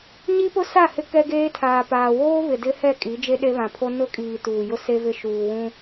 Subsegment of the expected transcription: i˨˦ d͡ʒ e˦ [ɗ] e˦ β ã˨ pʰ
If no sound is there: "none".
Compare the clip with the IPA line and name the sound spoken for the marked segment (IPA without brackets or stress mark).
ɗ